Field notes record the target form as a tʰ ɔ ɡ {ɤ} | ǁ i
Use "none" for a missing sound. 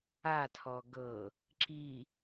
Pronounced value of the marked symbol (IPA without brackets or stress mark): ɤ